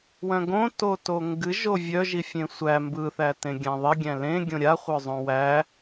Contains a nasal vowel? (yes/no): yes